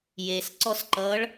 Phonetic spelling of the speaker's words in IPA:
j e s ǀ ɔ s ǃ ʌː ɭ

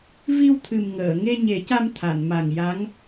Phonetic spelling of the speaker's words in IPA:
v i˧ w t̪ʰ ɨ˨˩ m ŋ əː˨˩˨ ŋ e˧ ɲ e˨˩˦ c a˧ m t̪ʰ a˨˩˨ n m a˨˩ ŋ j a˧˥ ŋ

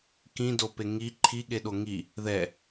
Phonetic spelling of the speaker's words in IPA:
k ĩ d o p e ŋ i ǃʰ i ɠ e ɗ o ŋ i | ð ɛ

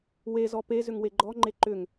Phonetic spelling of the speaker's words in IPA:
w e z ɔ p e z ʏ ŋ w e ɡ͡ǃ ɔ ŋ͡ǃ e ǃ ʏ ŋ

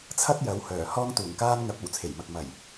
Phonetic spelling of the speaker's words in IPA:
t͡sʰ ɐ˥ t̚ j ɐ˨˧ w h œː˨˩ h ɔː˧ ŋ t̪ uː˨˩ ŋ k aː˧ n ŋ ɐ˨˥ p̚ ɐ˨˩ w t͡sʰ e˨˩ j m ɐ˨ k̚ m ɐ˨˩ j

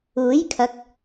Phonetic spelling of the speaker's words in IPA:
uː˨˥ j kʰ ɐ˨˥ k̚

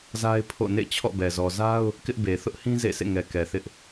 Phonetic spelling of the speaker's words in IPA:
z a˦ ɪ̯ pʰ o̰˦˨ n ḛ˦˨ t͡ɕʰ ɔ̰˦˨ b ɛ˨ z ɔ˨ z a˦ ʊ̯ | k ɪ˦ ʔ b e˨ θ ʊ˦ ʔ h ĩ˦ z ḛ˦˨ sʰ ḛ˦˨ ŋ ɛ˨ k ɛ˨ θ ɪ˦ ʔ

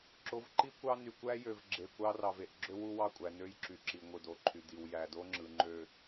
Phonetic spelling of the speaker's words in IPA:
ǁ o˨ v ǃ i˦ kʷ ɑ˦ n y˨ kʷ æ˦ j ø˨ v ɡ͡ǁ e˨ kʷ ɑ˦ r ɑ˨ v e˨ ʔ ɡ͡ǁ ø˦ w u˦ w ɑ˦˨ kʷʼ æ˨ n ø˦ j ǁ y˨ ǁ i˨ ŋʷ ɯ˨ d o˨ ǃʰ y˨ d i˨ w j æ˨ d o˦ ŋ͡ǁ ɯ˨ ŋ͡ǃ ø˨

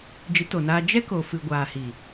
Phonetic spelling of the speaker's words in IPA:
d͡ʒ ɨ˨˦ t o˨ n aː˧ d͡ʒ ɛ˦ k o˨ f ɨ˨ ɡʷ aː˨ h i˨

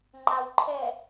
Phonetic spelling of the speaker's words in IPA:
ŋ͡ǃ a w ǃʰ ɛ

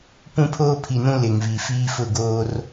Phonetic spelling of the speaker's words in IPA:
p ũ˦ pʰ oː˦ pʰ i˨ n ũ˦ l ɪ˨ ŋ v i˨ f iː˦ f ʊ˦˨ ɡ oː˦ r

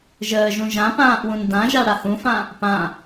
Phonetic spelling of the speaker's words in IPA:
ʒ əː ʒ ũ ʒ ã p ãː ʔ w ũ n d ã ʒ a ɽ a h ũ f ã | p ã

